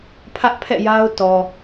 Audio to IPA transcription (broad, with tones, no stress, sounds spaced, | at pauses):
pʰ ä˦ ʔ pʰ ɛ̰˦˨ j a˦ ʊ̯ t ɔ˨